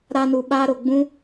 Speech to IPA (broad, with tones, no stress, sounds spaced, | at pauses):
ɾ aː˧ n u˨ ɓ aː˦ ɾ o˨ ɡ͡b ũ˦